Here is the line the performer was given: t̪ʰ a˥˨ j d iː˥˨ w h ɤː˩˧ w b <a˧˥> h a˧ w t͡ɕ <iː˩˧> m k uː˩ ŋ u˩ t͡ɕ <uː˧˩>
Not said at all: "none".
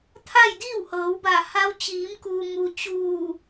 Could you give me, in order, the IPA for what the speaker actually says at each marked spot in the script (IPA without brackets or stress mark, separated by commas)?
a˧˩, iː˩˧, uː˧˩